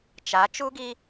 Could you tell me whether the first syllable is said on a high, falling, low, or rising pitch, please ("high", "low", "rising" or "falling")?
rising